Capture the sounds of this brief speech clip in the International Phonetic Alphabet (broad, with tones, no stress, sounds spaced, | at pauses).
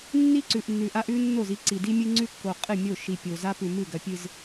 nː i˦ ǀ ʉ˨ ʔ nː ʉ˨ ʔ a˦ ʔ ʉ˦ nː o˦˨ z i˦ ǀ i˨ d i˦ mʲ ɨ˦ ŋ͡ǀ ʉ˦ kː o˨ qʼ ɨ˦˨ mʲ o˦˨ ʃ i˨ pʲ o˨ z a˦ p ʉ˨ m ɨ˦˨ ɡ ɐ˨ pʲ ɨ˨ z